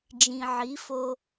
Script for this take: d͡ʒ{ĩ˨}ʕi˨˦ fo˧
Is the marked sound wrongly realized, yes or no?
no